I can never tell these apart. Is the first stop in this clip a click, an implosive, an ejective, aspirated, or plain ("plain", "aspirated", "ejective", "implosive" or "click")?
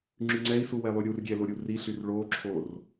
click